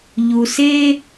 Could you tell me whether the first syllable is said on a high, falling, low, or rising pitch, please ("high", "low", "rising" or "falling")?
low